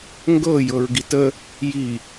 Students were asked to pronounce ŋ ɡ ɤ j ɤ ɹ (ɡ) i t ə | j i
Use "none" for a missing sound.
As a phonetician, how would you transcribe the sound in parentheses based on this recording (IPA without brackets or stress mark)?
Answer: ɡ